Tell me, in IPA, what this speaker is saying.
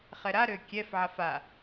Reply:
χɛɾaɾø kʲɛfʕaf a

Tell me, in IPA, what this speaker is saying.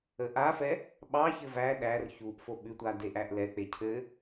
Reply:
əʔafɛ | ɓɑçɘ væ ɗær çuʔ foɓʉtʷa deʔæʔlɛk͡pe cʰɘ

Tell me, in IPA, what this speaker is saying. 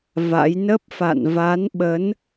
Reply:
va̰˧˥j nə˦˥p̚ fa̰˧˨nva˨˦nɓə˨˦n

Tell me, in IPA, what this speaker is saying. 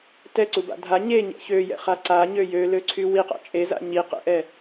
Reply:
tɛǀuba̰ dʱa ɲeɲɛ̰ çøjɛ̰χa ǀaɲø jøløǀʰy wiqa̰ t͡ʃʼeza̰ ɲi qɛ̰ʔɛ

